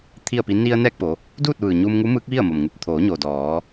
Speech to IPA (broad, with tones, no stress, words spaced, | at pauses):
t̪ʰi˥˨ə̯pi˧˥ ni˧ə̯ nɛː˥˨k̚po˩˧ | duː˥˨t̚ʋɯː˩ ɲuː˧mŋu˧˥mɯː˧˥k̚ ʋi˥˨ə̯mo˩mŋu˧˩p̚ t̪ʰoː˩˧ɲoː˩ dɔː˩˧